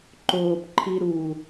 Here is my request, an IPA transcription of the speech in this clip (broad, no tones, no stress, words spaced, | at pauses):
ǃoːp ǃʰiɾu